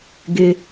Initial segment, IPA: ɡ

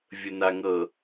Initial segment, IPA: vʲ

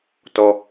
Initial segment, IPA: t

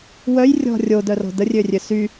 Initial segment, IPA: w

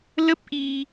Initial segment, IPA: l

